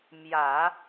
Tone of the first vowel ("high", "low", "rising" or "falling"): low